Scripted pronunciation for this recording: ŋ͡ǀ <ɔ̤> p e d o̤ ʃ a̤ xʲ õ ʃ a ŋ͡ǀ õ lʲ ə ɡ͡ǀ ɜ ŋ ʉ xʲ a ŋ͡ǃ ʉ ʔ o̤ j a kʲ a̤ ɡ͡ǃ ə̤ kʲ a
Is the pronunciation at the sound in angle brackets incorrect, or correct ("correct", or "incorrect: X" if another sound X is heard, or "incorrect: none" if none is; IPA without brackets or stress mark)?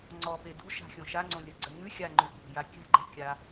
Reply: incorrect: ɔ